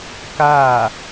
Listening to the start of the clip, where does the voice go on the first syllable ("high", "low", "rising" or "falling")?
falling